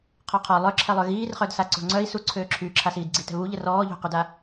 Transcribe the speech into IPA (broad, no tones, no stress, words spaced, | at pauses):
qʰɔqʰɔ lˠœǁʰɛlˠœ ɣiːrχœdsa ǀo̤ŋ͡ǀœi̯ suǀʰøːǁʰyː ǁʰasiːdɡ͡ǀi tɛ̤βuʎə rɔːʎo̤qyda